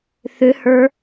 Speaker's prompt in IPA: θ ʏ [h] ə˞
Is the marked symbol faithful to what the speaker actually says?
yes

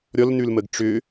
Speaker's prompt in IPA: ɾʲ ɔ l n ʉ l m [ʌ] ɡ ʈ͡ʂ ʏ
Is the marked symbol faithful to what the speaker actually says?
no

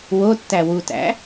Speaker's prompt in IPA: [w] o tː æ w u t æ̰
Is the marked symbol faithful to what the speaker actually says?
yes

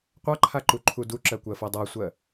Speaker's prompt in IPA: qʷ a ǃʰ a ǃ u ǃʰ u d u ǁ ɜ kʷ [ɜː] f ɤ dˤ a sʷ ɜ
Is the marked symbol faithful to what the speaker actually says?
no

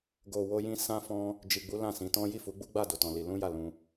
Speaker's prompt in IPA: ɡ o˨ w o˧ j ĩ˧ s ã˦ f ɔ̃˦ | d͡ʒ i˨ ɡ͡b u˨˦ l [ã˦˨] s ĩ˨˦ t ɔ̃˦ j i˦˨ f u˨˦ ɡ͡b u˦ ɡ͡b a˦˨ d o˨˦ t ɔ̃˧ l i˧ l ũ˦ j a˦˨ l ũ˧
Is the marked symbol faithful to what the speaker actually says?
yes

